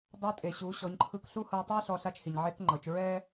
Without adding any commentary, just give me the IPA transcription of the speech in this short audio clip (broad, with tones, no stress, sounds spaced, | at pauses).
dˤ a˧˥ tʼ e˩ ɕ u˩˧ ɕ ɔ˩˧ ɲ ǃʰ ɯ˧ k ɬ u˥ h ɤ˧ tˤ u˥ ɐ̯ ɬ ɔ˧ ɬ a˧˥ t͡ʃ h i˩ ɲ ʕ e˧˥ k ŋ͡ǃ ɤ˩˧ t͡ʃ ɹ ɛ˥